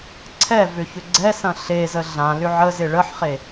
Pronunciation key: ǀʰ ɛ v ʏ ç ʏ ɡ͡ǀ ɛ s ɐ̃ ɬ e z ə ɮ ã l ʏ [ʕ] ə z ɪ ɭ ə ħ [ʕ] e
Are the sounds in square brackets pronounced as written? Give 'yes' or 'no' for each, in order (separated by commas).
yes, no